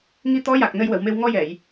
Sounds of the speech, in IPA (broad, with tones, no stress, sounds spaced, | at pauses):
ŋ i˧ t̪ ɔ˧˥ j a˨˩ k̚ n ə˧ j w ə˨˩˨ w m e˧ w ŋ ɔ˧ j ɛ˨˩˨ j